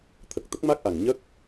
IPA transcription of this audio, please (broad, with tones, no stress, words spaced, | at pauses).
t̪ʰə˨˩k̚t̪ə˦˥k̚ma˦˥k̚ʔa˨˩ŋ ɲə˦˥k̚